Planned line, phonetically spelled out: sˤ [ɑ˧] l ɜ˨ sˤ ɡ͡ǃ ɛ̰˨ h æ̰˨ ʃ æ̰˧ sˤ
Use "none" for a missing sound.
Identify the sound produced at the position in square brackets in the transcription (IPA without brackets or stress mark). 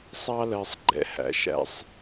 ɑ˧